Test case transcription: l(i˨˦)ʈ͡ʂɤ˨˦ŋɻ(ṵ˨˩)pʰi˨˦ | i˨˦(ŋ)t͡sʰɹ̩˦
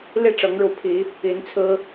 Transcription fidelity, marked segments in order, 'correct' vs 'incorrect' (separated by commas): incorrect, incorrect, incorrect